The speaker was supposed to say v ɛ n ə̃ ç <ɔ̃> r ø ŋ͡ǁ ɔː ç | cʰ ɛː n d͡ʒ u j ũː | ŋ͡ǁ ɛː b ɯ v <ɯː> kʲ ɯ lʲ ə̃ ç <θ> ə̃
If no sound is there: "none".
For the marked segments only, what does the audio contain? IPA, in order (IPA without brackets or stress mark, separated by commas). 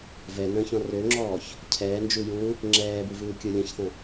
ɔ̃, ɯː, θ